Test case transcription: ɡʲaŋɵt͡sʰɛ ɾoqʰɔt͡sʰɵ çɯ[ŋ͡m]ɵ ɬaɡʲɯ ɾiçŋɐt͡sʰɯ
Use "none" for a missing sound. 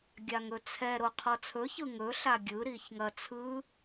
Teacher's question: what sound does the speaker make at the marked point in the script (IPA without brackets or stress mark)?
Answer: ŋ